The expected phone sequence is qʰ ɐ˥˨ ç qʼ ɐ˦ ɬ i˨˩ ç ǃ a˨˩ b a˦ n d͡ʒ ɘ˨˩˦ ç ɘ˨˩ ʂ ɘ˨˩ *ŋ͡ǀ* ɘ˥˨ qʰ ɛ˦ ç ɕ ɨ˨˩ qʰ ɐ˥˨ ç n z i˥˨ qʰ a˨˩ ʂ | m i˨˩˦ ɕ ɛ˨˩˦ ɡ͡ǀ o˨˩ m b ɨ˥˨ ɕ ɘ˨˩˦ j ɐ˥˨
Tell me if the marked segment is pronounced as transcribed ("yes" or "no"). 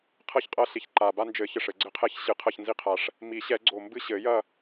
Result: no